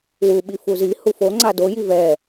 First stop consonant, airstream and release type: implosive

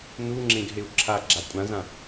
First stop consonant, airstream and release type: click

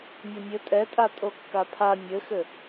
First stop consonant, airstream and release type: ejective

